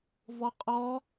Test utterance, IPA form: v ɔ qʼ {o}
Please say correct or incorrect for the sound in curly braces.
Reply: incorrect